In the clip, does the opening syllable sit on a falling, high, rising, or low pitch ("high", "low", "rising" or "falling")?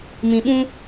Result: low